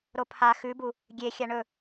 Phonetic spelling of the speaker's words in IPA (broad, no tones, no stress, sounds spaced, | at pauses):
ɾ o pʰ a x ʉ b u | ɡʲ e xʲ a ɳ ɵ